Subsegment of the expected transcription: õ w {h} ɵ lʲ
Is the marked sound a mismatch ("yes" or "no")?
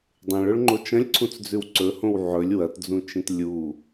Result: yes